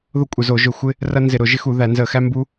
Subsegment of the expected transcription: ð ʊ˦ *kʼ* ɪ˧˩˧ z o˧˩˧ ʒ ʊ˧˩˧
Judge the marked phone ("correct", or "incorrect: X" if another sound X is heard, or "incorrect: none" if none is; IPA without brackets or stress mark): incorrect: kʷʼ